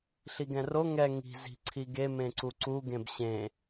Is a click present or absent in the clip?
present